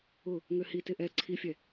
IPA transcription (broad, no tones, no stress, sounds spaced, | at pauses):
ʊ | ŋ ø h i t ɪ ʔ ɛ ǀʰ i fʲ ɛ